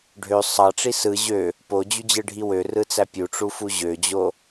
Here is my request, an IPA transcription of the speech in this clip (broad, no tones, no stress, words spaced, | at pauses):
ɖʱø sˤɑʈ͡ʂi sɯ ʑø | pod͡ʑyd͡ʑɯɖʱi wørɯt͡sæ pʲuʈ͡ʂufu ʑød͡ʑo